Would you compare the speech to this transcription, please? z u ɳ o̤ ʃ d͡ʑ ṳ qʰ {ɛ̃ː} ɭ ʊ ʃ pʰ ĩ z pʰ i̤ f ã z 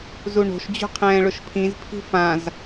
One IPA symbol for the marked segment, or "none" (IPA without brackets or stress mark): ɛ̃ː